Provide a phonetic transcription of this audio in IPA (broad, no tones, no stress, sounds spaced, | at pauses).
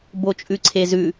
b o t͡ʃʼ ʉ ǀʰ e z ʉ